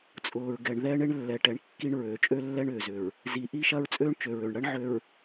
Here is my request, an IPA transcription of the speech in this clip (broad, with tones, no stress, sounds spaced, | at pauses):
t͡sʼ ʊː˨ ɹ ɡ ɛ˨ ɳ ð ɛ˦ ɳ e˦ ɳ lː ɛ˨ ʈ ɛ˨ ɳ kː i˦ ɳ ɹ øː˨ t͡ʃʼ ø˦ lː ɛ˦ ɳ ʏː˨ z ʏ˨ ɹ | z i˨ ʔ i˦ ʃ ɐ˦ ɹ t͡sʼ øː˦ ɳ t͡ʃ ø˨ ɹ ø˨ ɳ ɽ ɐ˦ ɳ ʕ ø˨ ɹ